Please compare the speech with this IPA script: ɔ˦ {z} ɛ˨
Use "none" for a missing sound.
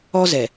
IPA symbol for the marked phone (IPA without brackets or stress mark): z